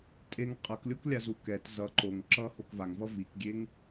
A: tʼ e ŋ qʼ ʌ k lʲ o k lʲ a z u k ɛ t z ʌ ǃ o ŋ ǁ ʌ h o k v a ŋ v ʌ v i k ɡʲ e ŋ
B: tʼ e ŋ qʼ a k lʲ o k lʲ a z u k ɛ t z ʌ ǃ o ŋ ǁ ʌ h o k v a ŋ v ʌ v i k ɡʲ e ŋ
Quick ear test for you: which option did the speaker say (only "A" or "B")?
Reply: A